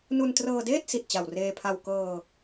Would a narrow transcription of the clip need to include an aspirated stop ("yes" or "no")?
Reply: yes